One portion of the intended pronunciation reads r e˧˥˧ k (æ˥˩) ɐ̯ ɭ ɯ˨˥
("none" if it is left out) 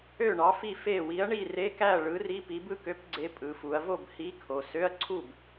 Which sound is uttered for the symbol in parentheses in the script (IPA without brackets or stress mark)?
æ˥˩